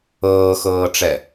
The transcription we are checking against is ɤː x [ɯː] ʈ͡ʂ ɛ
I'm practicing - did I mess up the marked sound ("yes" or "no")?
yes